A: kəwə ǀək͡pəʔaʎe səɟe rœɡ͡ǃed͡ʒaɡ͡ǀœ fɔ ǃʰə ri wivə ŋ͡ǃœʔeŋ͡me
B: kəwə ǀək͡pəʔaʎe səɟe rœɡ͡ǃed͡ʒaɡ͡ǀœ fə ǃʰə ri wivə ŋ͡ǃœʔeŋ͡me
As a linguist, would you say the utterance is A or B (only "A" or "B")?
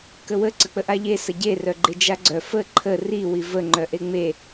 B